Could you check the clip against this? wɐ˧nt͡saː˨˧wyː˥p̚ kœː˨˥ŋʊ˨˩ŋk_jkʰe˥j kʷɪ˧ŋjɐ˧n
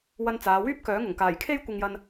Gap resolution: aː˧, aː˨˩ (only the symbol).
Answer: aː˨˩